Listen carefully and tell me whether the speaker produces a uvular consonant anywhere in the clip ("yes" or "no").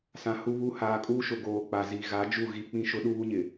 no